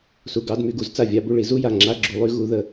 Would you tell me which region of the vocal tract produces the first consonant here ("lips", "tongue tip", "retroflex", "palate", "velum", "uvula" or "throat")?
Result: tongue tip